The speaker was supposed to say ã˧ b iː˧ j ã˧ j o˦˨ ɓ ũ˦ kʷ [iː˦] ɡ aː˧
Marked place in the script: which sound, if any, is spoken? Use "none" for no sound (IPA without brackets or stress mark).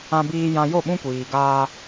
iː˨